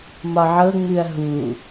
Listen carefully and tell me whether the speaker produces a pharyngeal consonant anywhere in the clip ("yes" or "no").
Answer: yes